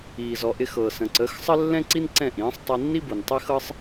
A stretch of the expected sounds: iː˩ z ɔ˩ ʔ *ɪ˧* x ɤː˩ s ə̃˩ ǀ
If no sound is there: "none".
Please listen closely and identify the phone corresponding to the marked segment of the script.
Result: ɪ˧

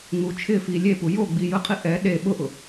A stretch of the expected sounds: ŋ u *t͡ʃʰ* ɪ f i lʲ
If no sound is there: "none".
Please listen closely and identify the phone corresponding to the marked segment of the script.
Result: t͡ʃʰ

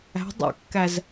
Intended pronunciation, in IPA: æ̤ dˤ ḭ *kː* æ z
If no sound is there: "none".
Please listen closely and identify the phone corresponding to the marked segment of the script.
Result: kː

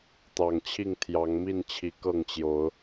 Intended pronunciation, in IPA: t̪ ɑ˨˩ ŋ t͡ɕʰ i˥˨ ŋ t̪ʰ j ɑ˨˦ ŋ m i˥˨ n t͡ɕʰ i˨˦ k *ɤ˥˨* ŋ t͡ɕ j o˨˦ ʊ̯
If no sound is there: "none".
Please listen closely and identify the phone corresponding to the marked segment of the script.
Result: ɤ˥˨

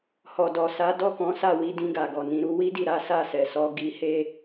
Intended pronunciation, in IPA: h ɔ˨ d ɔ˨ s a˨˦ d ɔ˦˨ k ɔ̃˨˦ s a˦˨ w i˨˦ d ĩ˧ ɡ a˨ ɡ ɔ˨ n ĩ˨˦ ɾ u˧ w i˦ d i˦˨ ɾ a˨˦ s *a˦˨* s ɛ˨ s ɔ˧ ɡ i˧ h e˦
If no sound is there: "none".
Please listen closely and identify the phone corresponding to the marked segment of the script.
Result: a˦˨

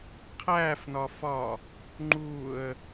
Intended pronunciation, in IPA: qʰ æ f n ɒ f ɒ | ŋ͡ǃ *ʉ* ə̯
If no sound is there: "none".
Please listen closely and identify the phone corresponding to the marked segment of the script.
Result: u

